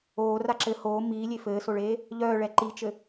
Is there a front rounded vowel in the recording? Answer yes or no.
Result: yes